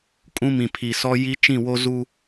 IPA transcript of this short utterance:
kʼ ũ˦ m ĩ˨ pʰ i˨ s ɔ˦ j i˦ t͡ʃ ĩ˦˨ w o˦ z u˦

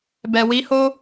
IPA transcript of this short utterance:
b ɛ˨ w i˨˦ h o˦

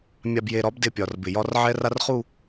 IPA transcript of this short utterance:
mʲ a˨ b j e˨ ɾ ɒ˨˦ b d ɪ˨ pʲ ɒ˨ r b ɪ˨ j ɒ˦ r ʕ ɛ˦ r a˦ r χ u˦˨

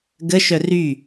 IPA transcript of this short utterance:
ɡ ə ʃ œ r y

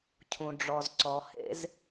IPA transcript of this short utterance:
cʰ ũ˧ ɖ͡ʐ ɔ˧ z ǀ ɔ˧ h ḛ˦ z

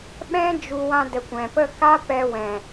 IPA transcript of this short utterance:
ɓ ɛ̃˦ d͡ʒ u˧ w ã˧ d ə˨ kʷ ɛ̃˨ p ə˦˨ k a˦ p ɛ˧ w ɛ̃˨

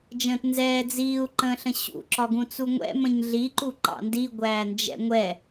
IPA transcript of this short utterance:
d͡ʒ ə̃ː t n z ɛː d͡z iː u̯ ǃ ə̃ː ɬ ə̃ ɕ ṵ ǁ ɒ ɡ ũ t͡s u ŋʷ ɛ̰ m ə̃ ɲ ɮ i ǃ u ǃ ɑ̰ n d i ɡʷ æː n d͡ʒ ɛ̰ ŋʷ ɛ

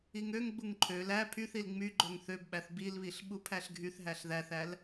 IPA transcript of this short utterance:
i ŋ ø ŋ ɡ͡b u ŋ ǃʰ ø l æ pʰ y θ i l ŋ͡m y ɡ͡ǃ ø ŋ θ ø b ɓ æ θ b i l β i ɬ ɓ u pʰ æ ɬ ɡʱ y θ ɦ æ ɬ ð æ θ æ l

